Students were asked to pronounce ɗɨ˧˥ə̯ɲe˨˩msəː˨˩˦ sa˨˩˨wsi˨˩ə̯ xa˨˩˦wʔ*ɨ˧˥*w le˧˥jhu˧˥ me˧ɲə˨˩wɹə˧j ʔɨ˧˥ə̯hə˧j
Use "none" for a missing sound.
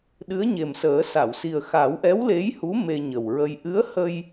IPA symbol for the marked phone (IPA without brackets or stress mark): ɛ˧˥